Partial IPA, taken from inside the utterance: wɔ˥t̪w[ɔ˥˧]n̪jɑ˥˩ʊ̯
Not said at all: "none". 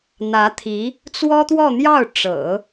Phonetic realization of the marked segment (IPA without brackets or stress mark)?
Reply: ɔ˥˧